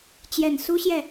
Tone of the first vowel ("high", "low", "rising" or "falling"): low